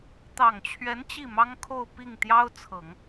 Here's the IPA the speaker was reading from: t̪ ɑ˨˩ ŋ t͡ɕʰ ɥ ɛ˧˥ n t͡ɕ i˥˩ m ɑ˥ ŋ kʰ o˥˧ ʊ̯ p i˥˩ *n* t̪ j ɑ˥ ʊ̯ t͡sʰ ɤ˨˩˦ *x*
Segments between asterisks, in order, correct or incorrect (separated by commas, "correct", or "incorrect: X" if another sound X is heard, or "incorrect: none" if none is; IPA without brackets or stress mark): incorrect: ŋ, incorrect: ŋ